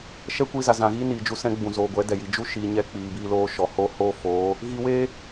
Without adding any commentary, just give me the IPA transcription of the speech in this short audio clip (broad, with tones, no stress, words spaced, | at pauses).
ʃɛ˦kʷi˧za˨ zã˨ɣiː˦ni˨d͡ʒu˧ sɛ̃˦ɡ͡bũ˨zoː˨ ɡʷɛ˨˦dɛ˨ji˨ d͡ʒu˦ʃiː˨ɲɛ˧ k͡piː˨biː˧loː˧ ʃɔ˨hoː˦ hoː˦foː˨˦ | ɣi˧weː˦